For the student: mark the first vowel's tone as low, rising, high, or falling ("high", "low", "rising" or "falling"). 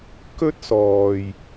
high